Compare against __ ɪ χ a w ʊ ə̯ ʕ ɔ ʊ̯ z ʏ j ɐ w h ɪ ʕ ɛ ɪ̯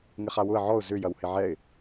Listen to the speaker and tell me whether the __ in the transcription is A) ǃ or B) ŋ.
B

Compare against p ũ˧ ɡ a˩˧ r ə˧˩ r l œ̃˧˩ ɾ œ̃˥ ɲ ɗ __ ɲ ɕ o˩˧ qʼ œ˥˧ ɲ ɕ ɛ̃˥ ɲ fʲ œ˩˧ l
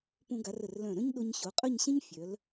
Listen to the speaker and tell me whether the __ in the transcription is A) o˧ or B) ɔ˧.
A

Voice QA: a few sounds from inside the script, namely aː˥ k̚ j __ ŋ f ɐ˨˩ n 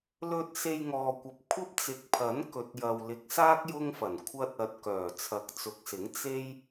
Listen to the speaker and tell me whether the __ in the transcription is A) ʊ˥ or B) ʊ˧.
A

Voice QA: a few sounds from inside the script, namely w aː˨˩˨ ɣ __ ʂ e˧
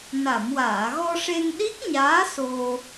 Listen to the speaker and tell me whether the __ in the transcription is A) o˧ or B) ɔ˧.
B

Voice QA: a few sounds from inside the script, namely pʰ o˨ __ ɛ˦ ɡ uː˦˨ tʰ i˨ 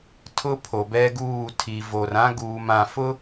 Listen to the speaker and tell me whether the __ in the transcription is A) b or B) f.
A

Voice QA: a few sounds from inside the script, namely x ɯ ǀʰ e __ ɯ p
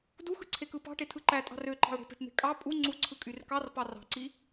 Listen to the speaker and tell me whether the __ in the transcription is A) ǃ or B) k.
B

